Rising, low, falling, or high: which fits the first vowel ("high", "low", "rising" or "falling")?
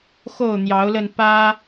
falling